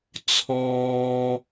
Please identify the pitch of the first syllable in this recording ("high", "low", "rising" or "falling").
high